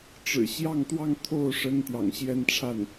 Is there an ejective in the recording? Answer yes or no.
no